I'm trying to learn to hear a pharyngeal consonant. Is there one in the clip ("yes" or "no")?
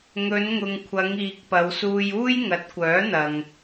no